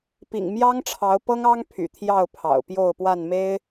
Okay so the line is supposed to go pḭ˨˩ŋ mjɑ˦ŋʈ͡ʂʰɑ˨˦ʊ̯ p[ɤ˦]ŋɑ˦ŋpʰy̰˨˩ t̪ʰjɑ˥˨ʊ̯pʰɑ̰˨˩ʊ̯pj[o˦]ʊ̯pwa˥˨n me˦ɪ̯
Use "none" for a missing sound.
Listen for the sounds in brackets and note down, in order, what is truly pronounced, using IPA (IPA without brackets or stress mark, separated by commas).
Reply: ɤ˦, o˥˨